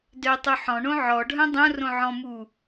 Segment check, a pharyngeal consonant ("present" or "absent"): present